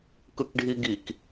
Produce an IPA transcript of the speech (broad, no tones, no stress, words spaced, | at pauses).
kɯkɖʱiɡik